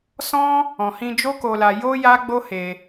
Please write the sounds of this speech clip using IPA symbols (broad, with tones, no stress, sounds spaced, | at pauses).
s ɔ̃˦ | ɔ̃˨ h ĩ˧ d͡ʒ o˦ k o˧ l a˧ j o˦ j a˦ ɡ͡b o˦ h e˧